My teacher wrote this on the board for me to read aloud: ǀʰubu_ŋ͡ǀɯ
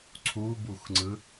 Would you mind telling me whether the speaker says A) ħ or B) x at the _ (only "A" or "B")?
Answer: B